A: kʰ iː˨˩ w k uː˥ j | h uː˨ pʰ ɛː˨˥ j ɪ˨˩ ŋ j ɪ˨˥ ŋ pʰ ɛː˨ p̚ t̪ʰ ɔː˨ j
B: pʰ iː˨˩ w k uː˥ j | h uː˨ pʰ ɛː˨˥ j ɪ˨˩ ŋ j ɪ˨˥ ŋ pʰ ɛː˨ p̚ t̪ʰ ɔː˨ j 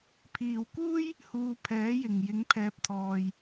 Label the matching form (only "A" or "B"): B